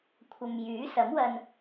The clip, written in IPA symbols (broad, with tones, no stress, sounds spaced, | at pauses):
kʷʰ ɐ˨ m j yː˨˥ s ɐ˨˥ m w ɐ˧ n